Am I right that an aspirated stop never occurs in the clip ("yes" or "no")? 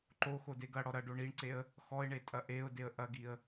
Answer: yes